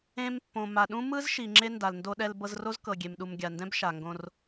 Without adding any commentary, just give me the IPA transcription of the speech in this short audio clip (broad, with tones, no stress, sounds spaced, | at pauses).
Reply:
ẽ˧ m pː õ˩ m a˩ ɗ ũ˥ m ɯ˥ z ʃ i˩ ŋ͡ǁ e˧ n d a˩ l n d o˧ ɗ ɛ˧ l b ɤ˧ z r o˥ z k ɤ˩ ɡʲ e˩ m ɗ u˩ m ɡʲ a˩ n d ɛ̃˥ b ʃ a˩ ŋ ɡ õ˧ r